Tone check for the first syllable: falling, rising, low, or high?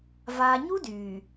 low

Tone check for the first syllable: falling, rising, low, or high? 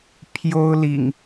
high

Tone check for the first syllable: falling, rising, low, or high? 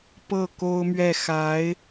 falling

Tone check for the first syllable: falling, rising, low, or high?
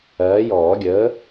rising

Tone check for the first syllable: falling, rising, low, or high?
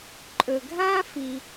low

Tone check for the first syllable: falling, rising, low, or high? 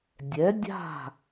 rising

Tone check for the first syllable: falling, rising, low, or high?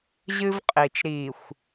high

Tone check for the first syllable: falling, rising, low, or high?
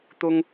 high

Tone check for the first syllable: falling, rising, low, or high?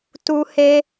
high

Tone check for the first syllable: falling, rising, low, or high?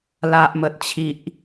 low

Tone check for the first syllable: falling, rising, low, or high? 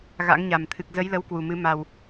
rising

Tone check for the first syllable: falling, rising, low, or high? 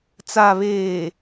low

